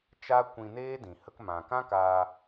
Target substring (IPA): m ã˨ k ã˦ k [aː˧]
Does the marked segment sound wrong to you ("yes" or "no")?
no